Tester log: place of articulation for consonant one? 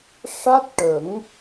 retroflex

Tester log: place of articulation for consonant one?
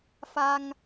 labial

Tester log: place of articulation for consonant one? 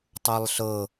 alveolar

